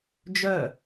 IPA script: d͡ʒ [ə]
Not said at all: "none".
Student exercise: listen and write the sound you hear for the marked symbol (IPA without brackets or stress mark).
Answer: œ